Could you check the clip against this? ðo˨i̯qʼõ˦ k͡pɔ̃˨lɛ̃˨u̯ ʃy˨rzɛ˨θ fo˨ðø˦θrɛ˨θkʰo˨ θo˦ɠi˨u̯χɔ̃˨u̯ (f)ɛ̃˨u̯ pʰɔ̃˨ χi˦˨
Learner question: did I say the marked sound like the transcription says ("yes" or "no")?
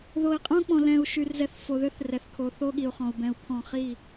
no